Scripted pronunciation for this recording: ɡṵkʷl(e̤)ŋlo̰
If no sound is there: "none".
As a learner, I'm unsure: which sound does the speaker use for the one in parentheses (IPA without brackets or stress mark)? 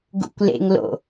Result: ḛ